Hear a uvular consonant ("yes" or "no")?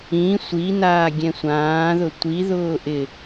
no